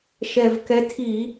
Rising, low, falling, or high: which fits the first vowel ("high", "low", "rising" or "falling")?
low